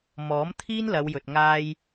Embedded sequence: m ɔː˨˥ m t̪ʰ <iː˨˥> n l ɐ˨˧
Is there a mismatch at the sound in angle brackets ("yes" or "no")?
yes